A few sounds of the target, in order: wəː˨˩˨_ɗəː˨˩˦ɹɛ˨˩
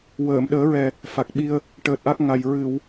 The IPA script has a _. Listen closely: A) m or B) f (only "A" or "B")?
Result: A